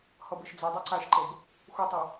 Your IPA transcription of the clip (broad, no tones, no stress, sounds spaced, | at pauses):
h ʌ b ə ʃ d͡z ɤ dˤ ʌ ǀ a ʃ ǃ ɤ b | x u tˤ a